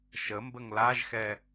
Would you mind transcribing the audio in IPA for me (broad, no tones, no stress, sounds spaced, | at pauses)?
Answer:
ʃ ə m b ə ŋ l a ʒ x ɛ